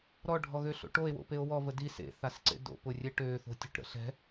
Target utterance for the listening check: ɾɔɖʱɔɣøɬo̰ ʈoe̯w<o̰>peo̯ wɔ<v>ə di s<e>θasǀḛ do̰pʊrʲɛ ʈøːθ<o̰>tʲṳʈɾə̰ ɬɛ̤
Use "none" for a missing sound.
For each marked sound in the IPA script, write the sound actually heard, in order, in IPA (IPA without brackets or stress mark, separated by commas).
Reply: o̰, v, ḛ, o̤